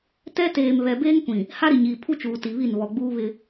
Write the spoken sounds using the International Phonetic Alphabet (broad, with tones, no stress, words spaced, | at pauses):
tɛ˦teː˨m βɛ˨beː˦ŋkʷĩ˨ | ha˦ɾi˨ɲiː˨ pʰu˦t͡ʃuː˨ ti˨βi˦˨n βɔ˨ɡ͡buː˦βɪ˦